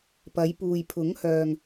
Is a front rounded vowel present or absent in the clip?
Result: present